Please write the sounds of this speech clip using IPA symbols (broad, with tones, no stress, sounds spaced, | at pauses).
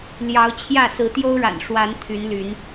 l j ɑ˨˦ ʊ̯ t͡ɕʰ j ä˥˨ s ɹ̩˨˦ t̪ j o˦ ʊ̯ ɻ a̰˨˩ n ʂ w a˨˦ n t̪ʰ y˨˦ n l y˨˦ n